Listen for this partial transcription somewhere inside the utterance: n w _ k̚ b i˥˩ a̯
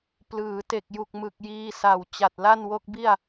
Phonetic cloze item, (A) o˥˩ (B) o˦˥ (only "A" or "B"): B